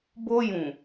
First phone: b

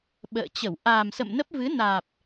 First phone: ɓ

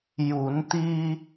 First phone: j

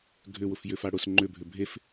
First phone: ɡʱ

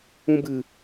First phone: ũ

